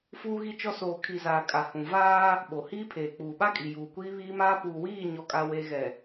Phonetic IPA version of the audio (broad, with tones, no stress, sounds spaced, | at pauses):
f uː˦ ɣ i˦ t͡ʃ ɔ˦ s oː˨ kʰ i˨ z aː˨ kʼ a˨ h ũ˨ v aː˦ | ɓ o˨ h iː˦ pʰ eː˨ k͡p uː˨ ɓ a˦ kʼ i˨ j uː˨ kʷ iː˦ β iː˦ m aː˦ p uː˨ w iː˦˨ ɲ ɔ˨ kʼ a˦ w eː˦ ɣ ɛ˨